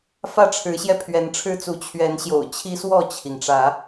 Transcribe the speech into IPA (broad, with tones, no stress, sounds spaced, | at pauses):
f ä˥˨ ʈ͡ʂʰ ɻ̩˨˦ ɕ j ɛ˧ pʰ ɥ ɛ˨˦ n ʈ͡ʂʰ ɻ̩˦ t͡s u˨˦ t͡ɕʰ ɥ ɛ˨˦ n ɕ j o̰˨˩ ʊ̯ t͡ɕʰ i˦ s w ɔ˥˨ t͡ɕʰ i˩ ŋ ʈ͡ʂ ä˨˦